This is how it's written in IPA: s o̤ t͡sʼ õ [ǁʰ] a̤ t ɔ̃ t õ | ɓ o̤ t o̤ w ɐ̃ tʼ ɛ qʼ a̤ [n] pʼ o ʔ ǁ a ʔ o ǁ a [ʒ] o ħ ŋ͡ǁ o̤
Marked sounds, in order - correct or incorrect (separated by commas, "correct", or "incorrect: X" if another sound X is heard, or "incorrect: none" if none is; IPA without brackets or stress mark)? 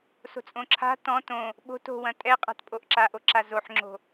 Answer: correct, incorrect: t, incorrect: z